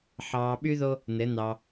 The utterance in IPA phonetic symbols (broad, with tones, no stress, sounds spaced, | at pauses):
ħ ɑː˧ ɓ y˦ ð o˦ | n ɘ˨˦ n̪ ɑ˧